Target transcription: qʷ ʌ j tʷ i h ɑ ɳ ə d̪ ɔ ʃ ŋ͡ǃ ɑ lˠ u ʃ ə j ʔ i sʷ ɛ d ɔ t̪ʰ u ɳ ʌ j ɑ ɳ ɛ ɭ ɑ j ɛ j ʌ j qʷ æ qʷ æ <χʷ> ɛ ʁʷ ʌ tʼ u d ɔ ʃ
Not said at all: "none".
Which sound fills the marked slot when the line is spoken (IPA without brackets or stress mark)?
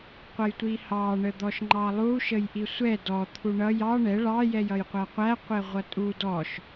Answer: qʷ